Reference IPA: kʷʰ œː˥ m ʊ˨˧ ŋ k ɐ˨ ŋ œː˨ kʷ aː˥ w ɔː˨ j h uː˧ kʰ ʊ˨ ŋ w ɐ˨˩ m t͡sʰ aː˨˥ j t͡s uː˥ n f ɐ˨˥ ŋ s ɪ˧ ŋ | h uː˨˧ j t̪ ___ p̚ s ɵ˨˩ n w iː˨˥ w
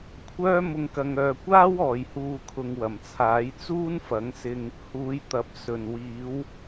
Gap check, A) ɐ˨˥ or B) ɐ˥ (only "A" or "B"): A